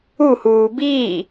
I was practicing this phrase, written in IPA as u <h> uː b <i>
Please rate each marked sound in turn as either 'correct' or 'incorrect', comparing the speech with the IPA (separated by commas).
correct, incorrect